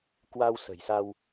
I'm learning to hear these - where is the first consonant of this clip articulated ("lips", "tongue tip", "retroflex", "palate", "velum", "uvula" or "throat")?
velum